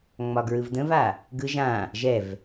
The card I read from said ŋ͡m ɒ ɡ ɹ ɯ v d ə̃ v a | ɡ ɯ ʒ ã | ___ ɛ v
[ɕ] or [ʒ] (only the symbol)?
ʒ